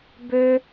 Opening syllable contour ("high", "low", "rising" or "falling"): high